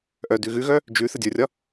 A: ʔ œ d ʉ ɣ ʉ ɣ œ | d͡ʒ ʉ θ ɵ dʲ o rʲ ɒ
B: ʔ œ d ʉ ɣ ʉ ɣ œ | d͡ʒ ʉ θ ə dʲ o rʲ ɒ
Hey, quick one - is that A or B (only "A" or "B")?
B